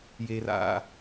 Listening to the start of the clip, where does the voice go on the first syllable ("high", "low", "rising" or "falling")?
low